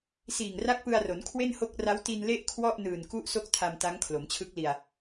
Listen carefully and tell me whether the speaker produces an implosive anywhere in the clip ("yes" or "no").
no